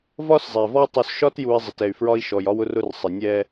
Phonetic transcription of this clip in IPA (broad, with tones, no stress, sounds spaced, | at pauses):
v ɒ˦ s zˤ ɛ˨ v ɔ˦ tˤ u˨ s ʃ ɒ˦ t j u˨ i̯ zˤ ɪ˨ t ɛ˨ y̯ f ɹ ɒ˦ i̯ ʃ ɔ˨ j ɒ˦ w ʊ˦ r ʊ˦ r sˤ ɪ˨ nʲ ɛ˦